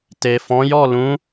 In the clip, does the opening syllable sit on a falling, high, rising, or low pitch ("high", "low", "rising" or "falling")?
low